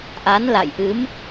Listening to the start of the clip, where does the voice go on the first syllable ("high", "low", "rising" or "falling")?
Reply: rising